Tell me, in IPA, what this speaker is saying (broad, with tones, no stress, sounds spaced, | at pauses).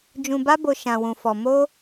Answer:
d͡ʒ ũ˧ b a˦ b o˧ ʃ ã˧ w ũ˧ f ɔ˧ m o˦